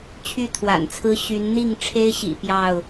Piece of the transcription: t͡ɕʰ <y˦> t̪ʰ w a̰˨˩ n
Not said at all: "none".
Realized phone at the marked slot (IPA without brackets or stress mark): y˥˨